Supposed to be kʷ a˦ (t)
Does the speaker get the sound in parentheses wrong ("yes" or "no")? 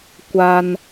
yes